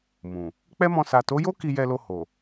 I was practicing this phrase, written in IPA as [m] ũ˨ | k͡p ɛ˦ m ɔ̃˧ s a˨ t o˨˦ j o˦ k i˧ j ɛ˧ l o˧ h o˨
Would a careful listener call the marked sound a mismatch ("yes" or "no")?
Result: no